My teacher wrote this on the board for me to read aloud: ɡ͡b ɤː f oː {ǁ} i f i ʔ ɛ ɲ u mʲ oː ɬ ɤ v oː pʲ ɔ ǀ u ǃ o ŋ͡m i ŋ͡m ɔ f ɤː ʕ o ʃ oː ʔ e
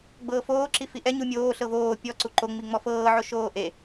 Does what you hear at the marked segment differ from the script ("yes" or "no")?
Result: no